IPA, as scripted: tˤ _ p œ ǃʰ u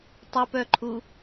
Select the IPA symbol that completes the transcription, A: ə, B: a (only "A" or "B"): A